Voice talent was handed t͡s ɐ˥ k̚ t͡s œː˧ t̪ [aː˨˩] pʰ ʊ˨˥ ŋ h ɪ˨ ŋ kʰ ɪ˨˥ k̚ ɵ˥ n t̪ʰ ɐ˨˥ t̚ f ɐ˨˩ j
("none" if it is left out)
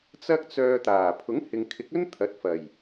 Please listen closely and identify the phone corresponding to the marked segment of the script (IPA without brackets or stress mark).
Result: aː˨˩